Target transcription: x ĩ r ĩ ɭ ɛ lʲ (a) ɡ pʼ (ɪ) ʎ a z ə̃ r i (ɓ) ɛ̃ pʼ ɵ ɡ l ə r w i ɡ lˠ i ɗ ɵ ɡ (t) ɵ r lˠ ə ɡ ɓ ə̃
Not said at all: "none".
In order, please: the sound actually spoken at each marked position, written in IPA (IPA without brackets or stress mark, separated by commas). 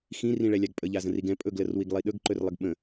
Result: a, ə, ɡ, ǃ